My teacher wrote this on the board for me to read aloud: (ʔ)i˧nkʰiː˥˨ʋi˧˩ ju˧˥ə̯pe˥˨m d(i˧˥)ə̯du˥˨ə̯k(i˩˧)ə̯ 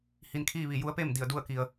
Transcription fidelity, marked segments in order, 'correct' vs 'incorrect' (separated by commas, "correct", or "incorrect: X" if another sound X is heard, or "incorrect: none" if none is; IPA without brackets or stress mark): incorrect: h, incorrect: i˧˩, incorrect: i˩